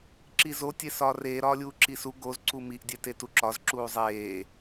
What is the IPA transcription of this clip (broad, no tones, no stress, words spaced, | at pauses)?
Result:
ǁizo tʲesɒːreː ɾɒːlʲuːǁisu ɡoz ǀumiʔ dʲetetuǁɒz ǁuːzˤeː